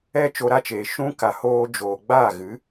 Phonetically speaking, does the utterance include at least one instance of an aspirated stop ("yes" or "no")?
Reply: no